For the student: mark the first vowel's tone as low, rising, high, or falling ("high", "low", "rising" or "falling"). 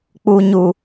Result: low